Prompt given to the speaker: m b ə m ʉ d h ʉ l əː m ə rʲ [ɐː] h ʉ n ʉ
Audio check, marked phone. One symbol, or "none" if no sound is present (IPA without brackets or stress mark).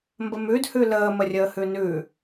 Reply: əː